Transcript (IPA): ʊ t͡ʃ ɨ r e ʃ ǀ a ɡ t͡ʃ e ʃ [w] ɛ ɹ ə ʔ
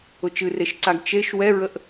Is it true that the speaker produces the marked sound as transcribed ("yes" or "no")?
yes